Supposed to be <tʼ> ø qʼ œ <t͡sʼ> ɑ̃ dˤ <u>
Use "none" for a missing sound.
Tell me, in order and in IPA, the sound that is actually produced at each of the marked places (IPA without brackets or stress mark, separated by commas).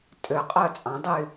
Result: tʼ, t͡sʼ, y